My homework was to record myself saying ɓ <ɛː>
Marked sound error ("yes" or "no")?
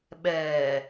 no